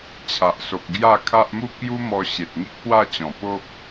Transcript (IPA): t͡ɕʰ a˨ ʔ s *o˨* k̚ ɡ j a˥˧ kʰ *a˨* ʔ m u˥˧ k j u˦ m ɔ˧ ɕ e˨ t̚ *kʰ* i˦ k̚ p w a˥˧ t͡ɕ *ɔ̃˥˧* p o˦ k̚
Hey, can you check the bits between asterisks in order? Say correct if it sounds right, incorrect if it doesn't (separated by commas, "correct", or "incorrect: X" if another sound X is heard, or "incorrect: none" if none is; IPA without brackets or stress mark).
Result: correct, incorrect: a˦, incorrect: ŋ, incorrect: ɔ̃˨˩